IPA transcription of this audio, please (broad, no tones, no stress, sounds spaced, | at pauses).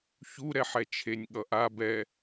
ç u ɾ ɛ ħ ɛ t͡ʃʰ e nʲ ɠ ʌ ʔ a b ɛ